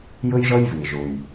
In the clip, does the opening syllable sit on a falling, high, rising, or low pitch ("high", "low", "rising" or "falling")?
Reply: high